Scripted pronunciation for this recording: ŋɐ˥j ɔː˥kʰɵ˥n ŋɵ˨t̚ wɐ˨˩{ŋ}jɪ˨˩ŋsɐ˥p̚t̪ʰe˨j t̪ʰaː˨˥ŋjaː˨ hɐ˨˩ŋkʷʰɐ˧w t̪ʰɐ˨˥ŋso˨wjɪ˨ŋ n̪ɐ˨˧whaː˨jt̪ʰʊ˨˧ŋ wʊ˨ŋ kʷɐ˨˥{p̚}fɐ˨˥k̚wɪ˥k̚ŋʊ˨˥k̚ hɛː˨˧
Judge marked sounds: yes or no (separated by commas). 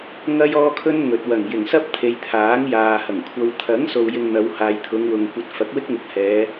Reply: yes, no